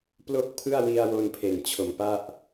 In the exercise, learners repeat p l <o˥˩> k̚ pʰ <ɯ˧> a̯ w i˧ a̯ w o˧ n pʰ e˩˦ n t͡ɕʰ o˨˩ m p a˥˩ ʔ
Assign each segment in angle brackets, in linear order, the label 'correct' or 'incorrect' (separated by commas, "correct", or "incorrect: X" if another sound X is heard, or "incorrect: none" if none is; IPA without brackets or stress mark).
correct, incorrect: ɯ˥˩